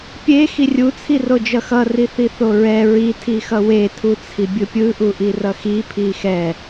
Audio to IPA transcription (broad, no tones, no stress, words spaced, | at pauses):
pʲe xirʲu t͡sʰirod͡ʒʌxʌ riθiθoɹɛ ɹi tʰixʌwe tʰut͡sʰibʲɯpʲɯ ʔuʔirʌxi pʰixɛ